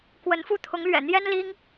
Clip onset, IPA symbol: k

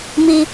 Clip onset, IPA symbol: m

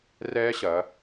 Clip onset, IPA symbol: r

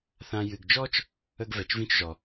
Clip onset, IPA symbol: θ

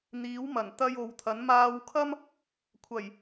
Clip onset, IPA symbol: n̪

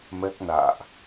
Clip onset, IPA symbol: m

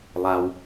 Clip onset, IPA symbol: lˠ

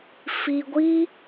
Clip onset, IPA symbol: f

